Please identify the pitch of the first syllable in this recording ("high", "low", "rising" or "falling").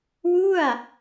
falling